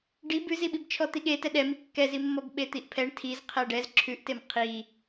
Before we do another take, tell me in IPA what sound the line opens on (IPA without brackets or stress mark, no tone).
ɖ